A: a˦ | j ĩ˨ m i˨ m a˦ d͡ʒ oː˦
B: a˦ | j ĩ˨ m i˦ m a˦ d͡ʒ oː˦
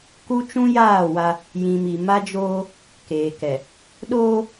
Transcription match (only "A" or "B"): A